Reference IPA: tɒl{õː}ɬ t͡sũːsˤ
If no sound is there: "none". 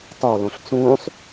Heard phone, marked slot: õ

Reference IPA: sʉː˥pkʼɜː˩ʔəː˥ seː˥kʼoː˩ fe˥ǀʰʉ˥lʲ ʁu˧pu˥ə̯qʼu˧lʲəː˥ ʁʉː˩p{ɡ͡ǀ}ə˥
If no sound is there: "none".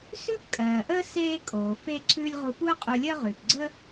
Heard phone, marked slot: ɡ͡ǀ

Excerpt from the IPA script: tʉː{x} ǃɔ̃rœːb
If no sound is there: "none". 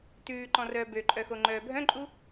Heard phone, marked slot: none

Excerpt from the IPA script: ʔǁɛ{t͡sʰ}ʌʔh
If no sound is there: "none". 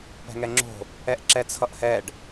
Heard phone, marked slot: t͡sʰ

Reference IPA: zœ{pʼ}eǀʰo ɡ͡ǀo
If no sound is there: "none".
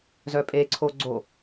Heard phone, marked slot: pʼ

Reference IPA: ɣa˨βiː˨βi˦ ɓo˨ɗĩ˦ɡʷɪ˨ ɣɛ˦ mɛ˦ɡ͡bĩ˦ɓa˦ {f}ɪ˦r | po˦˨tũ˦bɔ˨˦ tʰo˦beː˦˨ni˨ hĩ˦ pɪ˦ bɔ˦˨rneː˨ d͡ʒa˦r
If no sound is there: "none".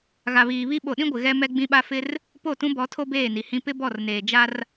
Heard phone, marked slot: f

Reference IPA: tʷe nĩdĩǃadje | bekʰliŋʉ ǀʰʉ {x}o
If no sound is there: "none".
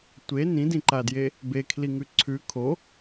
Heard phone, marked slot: kʰ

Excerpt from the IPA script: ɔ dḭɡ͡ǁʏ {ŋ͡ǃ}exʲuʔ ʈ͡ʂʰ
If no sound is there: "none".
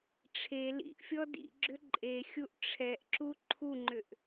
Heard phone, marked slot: ǃʼ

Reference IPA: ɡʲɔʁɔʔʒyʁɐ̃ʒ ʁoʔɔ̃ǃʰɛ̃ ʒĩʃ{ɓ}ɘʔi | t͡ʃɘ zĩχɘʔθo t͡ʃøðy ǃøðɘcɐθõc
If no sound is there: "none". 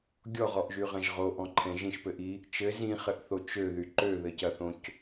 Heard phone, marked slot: p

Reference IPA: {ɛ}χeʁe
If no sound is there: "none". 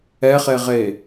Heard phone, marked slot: ɛ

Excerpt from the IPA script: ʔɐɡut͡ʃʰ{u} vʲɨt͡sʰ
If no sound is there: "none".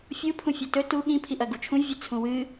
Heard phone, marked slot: ũ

